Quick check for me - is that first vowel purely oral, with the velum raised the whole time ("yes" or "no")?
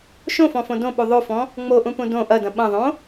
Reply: no